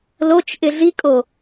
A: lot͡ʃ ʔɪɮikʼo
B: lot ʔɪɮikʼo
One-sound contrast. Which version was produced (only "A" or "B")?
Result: A